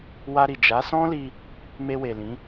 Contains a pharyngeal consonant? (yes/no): no